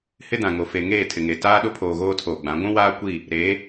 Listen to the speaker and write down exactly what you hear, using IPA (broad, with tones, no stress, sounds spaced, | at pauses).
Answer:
h ɪ˦ d ã˨ ŋ o˨ f e˨ ŋ eː˦˨ tʰ ɪ˨ ŋ e˨ t aː˦ ɗ ʊ˦ pʰ oː˨ ɣ oː˦ tʰ oː˨ ɡ͡b ã˨˦ ɡʷ ũ˦ w aː˦ kʷ i˦˨ | ɾ e˨˦